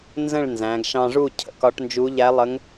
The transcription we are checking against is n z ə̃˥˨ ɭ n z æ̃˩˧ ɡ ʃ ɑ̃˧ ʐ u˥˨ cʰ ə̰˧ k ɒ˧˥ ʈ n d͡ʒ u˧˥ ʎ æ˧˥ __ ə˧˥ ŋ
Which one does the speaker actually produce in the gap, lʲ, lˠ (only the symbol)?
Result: lˠ